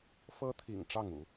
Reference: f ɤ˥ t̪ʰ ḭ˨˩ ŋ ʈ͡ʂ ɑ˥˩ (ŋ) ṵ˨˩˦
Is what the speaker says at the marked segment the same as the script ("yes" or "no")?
yes